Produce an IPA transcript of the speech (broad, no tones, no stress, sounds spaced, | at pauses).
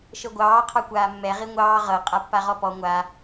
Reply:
ʃ ɤ ɡʷ ɑː qʰ ɑ kʷ aː mː ɛ ʁ i ŋʷ ɑː ʁ ɤ qʼ a pː a ʁ ɔ p ɔ ŋʷ a